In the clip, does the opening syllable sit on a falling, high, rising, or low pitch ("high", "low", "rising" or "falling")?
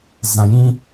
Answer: low